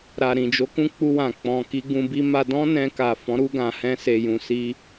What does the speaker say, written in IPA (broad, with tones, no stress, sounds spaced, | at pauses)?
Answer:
ɾ a˨ ɾ ĩ˨ d͡ʒ o˨˦ k ũ˧ k͡p u˧ w ã˨ k͡p ɔ̃˨ k i˧ ɡ ũ˧ b i˦ m a˧ d ɔ̃˦ n ɛ̃˧ k a˨ f ɔ̃˨˦ ɾ u˧ ɡ ã˨ h ɛ̃˧ s e˨ j ũ˨ s i˧